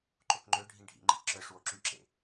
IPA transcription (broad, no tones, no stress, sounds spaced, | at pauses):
ǃ o k ŋ͡ǃ ø ɖʱ ĩ ɖʱ ḭ ŋ͡ǃ ḭ k ǁ œ ʂ w o ǁ y ǁ ḛ